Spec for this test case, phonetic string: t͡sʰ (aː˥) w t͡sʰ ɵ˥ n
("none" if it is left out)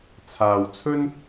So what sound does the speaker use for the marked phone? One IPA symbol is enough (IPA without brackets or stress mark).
aː˨